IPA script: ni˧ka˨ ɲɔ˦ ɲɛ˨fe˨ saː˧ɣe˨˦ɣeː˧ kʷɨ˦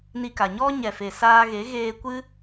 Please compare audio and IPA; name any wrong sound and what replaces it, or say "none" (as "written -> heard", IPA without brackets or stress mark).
none